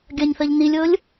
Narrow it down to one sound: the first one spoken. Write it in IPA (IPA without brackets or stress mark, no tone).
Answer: ɡʲ